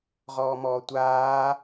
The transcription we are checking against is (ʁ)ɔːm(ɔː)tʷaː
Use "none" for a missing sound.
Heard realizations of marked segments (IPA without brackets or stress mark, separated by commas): ʁ, ɔː